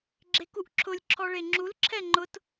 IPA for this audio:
ɡ͡ǁ e k u ʔ ǁʰ ʊ lʲ ǁʰ ɔ ɭ e ŋ͡ǁ u l ǁʰ ɛ ŋ͡ǃ ʊ t

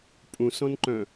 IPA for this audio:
pʼ ũ s ɔ̃ n ǃ œ̃

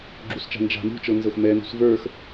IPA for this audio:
ɡ͡ǁ u s t͡ʃ a̤ n d͡ʒ a̤ m ṳ t͡ʃ ɤ n z ɤ x m ɛ n ṳ s v ə˞ x

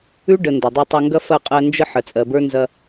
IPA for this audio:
ʉ˦ ɖ ə˨ n d ɐ˨ dˤ ɛ˧ tˤ ɐ˧ ŋ ɡ ɐ˦ f ɐ˦˨ qʼ ɜ˧ n d͡ʒ ə˦ ħ ə˨ t͡sʼ ɜ˨ b ə˞˦ n z ɐ˧

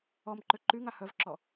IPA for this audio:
ɔ m ǃ ø ǃ y ŋ a h œ v ǁ ɔ

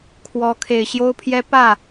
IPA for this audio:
kʰ w ɔ˧˥ kʰ e˨˩ ɪ̯ ɕ j o˥ ʊ̯ pʰ j ɛ˥ p ä˥˩

